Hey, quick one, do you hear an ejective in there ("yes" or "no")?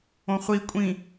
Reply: yes